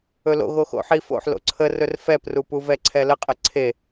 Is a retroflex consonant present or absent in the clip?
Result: absent